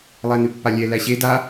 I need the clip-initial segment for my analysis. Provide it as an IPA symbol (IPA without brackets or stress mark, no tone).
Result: lˠ